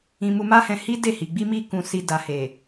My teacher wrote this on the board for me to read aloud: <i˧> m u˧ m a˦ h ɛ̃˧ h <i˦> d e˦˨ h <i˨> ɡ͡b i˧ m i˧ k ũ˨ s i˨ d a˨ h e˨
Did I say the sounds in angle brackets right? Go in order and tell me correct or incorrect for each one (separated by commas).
incorrect, correct, correct